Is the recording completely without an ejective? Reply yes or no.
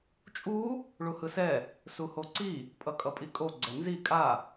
no